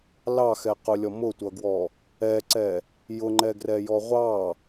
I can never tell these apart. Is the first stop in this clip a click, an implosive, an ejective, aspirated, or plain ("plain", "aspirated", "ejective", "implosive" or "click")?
plain